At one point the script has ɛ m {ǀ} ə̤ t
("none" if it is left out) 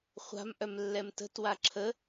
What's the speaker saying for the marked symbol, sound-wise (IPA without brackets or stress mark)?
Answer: t